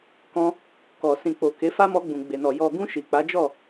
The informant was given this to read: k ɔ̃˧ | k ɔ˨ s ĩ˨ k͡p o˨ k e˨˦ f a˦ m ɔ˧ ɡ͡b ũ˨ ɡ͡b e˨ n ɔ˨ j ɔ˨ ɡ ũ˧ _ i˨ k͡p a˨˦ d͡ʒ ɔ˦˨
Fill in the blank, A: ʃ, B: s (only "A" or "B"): A